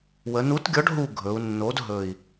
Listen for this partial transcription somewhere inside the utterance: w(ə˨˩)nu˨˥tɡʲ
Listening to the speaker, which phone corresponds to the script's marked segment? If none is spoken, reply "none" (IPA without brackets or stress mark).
ə˩˧